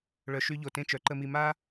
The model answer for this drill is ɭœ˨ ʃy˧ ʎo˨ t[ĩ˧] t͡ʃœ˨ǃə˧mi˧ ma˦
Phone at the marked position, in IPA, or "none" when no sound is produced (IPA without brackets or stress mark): ẽ˧